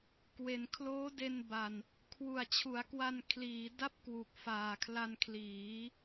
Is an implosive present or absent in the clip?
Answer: absent